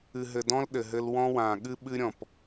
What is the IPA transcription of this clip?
ɨ˨ ɦ ɘ˨ d ɔ̃˦ l ɗ ɘ˨ ɦ ɘ˦ l w ɔ̃˦ w ã˨ ɠ ɨ˦ ɓ ɨ˦ ɾʲ ɔ̃˨ p

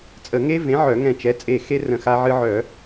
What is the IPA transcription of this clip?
t͡sʼ ə˧˩˧ ŋ e˦ v ẽ˨˥ ʕ œ˧˩˧ ŋ ɛ̃˧˩ t͡ʃ ɛ˨˥ t͡sʼ e˧˩ x e˦ r ə̃˧˩ x a˦ ʕ ɨ˦ ʕ œ˧˩˧

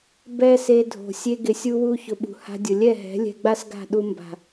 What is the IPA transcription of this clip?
b ɛ˦ s e˧ dʱ o̤˨ sʲ e˧ ɡ ɪ˨ sʲ u˧ w u˧ ç ʊ˨ ɓ ṳ˨ h a̤˧ dʲ ʊ˨ lʲ ɛ˦˨ ɦ ɛ̤˨˦ lʲ ɛ̤˧ ɡ͡b a˦ s ɡ a̤˦˨ ɗ u˧ m b a̤˨

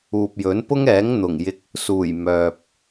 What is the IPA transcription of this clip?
uː˨ p̚ j ɵ˨˥ n p ʊ˥ ŋ ɛː˨˥ ŋ n̪ ʊ˨˩ ŋ j ɪ˧ k̚ | s uː˨˩ j m œː˨ p̚

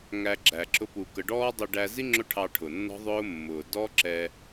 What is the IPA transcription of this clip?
ŋ æ˧ ɡ͡ǁ æ˨ ǁ ʊ˦ p u˧ k ə˧ ɖ ɔː˦ dˤ ə˧ ɖ æ˧ z i˦ ŋ͡ǁ ʊ˦ ʈʰ ɑ˧ ʈʰ ʊ˨ nː ɔ̤˦ ðˤ ʊː˦ mː ʊː˨ d ɔ˦ ǁ ɛ˧

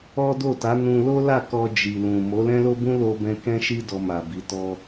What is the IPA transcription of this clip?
ɔ˦ d o˦˨ t a˨˦ n ũ˧ l o˦ l a˦˨ k ɔ˧ d͡ʒ i˨ l ũ˨ m o˨˦ l ɛ̃˦ l o˦ b ũ˦ l o˦ b ɛ̃˦ k ɛ̃˦ ʃ i˦ d ɔ˧ m a˨ b i˨˦ t ɔ˦

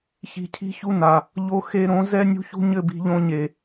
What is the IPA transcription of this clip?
ç i̤˧ cʰ i̤˦ ç u˦ n a˨ | ʎ o˧ x e˧ ɾ õ˨˦ z ɛ˦ nʲ ṳ˦ ç ṳ˦ ɲ ɘ˦˨ b i̤˧ ʎ õ˧ ɲ e˨

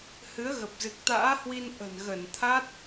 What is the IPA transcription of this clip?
h ɨ˨˦ ə̯ ɣ ə˨˩ p̚ z ɨ˨˩ k̚ t̪ a̰ː˧˥ h w i˧ n ʔ ə̤˨˩ n ɣ ə˧˩ n t̪ʰ a˦˥ t̚

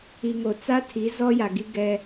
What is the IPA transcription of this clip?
i˨ ŋ o˨ t͡s a˦ tʰ i˨˦ z ɔ˦ j a˨ ɡ i˦ ɡ ɛ˦

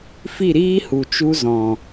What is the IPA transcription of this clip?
f i˦˨ ɾ iː˦ h u˨ t͡ʃ u˧ z ɔ̃˨

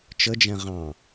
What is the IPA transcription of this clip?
t͡ʃ ə d͡ʒ ɛ̃ ʁ ɑ̃

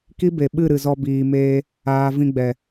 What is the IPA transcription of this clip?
k i˦ b e˨ ɓ ɨ˦˨ ɾ ɨ˨ z ɔ˧ b iː˨ m eː˧ | aː˨ v ĩ˧ ɡ͡b ɛ˨

